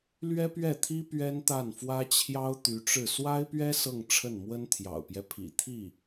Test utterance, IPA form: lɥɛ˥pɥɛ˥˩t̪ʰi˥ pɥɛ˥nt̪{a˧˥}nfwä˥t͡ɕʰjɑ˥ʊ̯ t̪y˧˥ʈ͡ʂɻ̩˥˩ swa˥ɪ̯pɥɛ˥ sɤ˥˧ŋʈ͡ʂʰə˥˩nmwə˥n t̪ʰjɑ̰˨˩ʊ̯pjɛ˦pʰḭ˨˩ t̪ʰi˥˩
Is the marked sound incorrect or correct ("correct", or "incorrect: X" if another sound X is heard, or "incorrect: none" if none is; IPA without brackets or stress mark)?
incorrect: a˥˩